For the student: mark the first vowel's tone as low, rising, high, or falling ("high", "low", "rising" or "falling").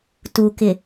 low